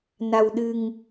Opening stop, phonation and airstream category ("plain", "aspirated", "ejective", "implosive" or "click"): implosive